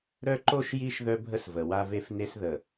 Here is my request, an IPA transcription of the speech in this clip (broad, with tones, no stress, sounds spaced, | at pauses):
ɾ œ˦ ǃ o˦ ʃ j i˦ ʃ ð œ˦ bʱ ə˦ s v ə˨ w a˦ v e˦ f n e˦ s ð ə˨